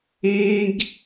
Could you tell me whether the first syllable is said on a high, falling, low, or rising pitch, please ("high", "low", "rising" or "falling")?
high